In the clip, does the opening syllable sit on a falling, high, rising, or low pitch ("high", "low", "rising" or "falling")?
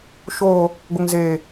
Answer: low